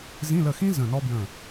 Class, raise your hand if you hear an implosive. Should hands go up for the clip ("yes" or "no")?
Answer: no